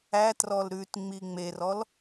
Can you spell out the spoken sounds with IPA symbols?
æ trɔlɾʉtŋ͡mi ŋ͡merɔl

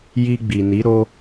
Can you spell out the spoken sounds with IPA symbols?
ji˧ɡ͡bi˨ni˨˦ ɾo˧

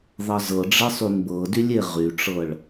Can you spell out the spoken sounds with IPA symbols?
ðˤʌzɤɖ͡ʐe sˤynbɤdylʲ eʁyʈ͡ʂɤɭ

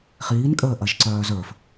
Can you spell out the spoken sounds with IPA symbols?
χiːnkʼəːʔɐʒǀœː zə˞f

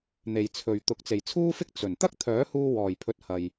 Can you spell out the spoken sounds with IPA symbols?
n̪e˨jt͡sʰɵ˨ɥt̪ʊ˨˥k̚ t͡se˨jt͡sʰuː˥fɪ˥k̚ t͡sɵ˨˩n t̪ɐ˥k̚t̪ʰœː˨˥huː˧wɔː˨˩j pʰɵ˧t̚hɐ˨j

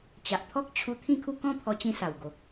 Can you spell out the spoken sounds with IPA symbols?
t͡ɕa˨ʔ t̪ʰɔ˦k̚t͡ɕʰu˧ t̪ʰĩ˥˧kʰu˥˧ kɔ̃˥˧pʰɔ˧t͡ɕĩ˧ sa˨˩wɡo˨k̚

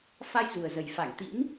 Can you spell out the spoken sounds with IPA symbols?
fa˧j zu˨˩ə̯zə˨˩j fa˧˩ŋt̪ḭ˧˥n

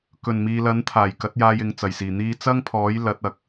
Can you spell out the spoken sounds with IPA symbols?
kɵ˨˩nmiː˨lɐ˨˥n t̪ʰaː˨˩jkɐ˨˥t̚jaː˧j ɪ˨ŋ t͡sɐ˨˩jsiː˨˩ n̪iː˧t͡sɐ˥ŋpʰɔː˨˥j lɐ˨˥t̚ɐ˨k̚

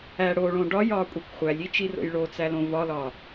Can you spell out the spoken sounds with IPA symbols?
æ ɽoɭõ ɖɒjɒkʷʼekʷ χʷælʲit͡ʃiro̰j ɭot͡sælõ vɒlɒ

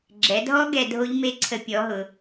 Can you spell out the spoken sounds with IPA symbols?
ɡ͡ǁɛ˩˧dʱɔ˦˥ ɡɛ˧dʱo˦˥ʎme˦˥ǀʰə˧ pʲɔ˨˥ɦʊ˩˧

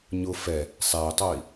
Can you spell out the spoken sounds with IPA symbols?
ɲʊ fɛ | sˤɛy̯tˤoi̯

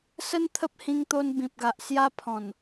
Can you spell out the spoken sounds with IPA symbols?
sə˦nt̪ʰə˦p̚hĩ˧ŋt̪o˧n bĩ˨p̚ɡa˨ʔsja˦ pʰɔ̃˨˩n

